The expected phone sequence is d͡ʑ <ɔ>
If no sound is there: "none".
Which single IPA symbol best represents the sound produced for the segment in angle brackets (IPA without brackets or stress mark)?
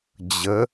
ə